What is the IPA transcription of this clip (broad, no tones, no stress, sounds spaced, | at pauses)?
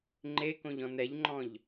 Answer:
ŋ͡ǃ e k õ ʎ ɔ̃ n ɛ ʎ ŋ͡ǃ ɔ̃ ʎ